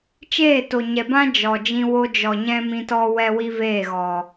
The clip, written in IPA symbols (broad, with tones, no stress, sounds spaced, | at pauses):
t͡ʃ eː˦˨ t o˨ ɲ ɛ˨ b ã˦ d͡ʒ ɔ˨ d͡ʒ ĩ˧ w o˧ d͡ʒ ɔ˨ ɲ ɛ̃˧ m ĩ˧ t ɔ˦ w ɛ˦ w i˦ v eː˦˨ ɣ ɔ˨